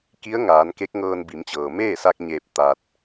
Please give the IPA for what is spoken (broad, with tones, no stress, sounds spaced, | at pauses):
k i˧˥ ə̯ ŋ aː˩˧ n k e˧˥ k̚ ŋ ɤː˧ n b i˩˧ m t͡ɕ ɤː˩ m eː˥˨ s a˧ k̚ ɲ eː˧˩ p̚ t̪ a˧ t̚